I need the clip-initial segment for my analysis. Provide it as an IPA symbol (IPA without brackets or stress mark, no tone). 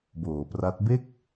b